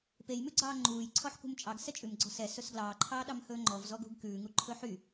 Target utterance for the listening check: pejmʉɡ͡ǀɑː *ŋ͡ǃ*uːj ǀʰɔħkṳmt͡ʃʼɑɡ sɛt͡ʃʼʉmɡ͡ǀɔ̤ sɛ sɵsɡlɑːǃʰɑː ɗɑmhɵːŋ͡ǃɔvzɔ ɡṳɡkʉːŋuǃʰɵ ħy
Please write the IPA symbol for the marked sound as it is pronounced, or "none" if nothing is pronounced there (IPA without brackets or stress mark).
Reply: ŋ͡ǃ